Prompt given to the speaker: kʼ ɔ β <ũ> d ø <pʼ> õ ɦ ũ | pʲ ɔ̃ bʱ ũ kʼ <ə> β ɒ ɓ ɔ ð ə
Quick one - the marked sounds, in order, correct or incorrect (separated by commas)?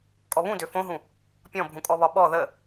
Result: correct, incorrect, incorrect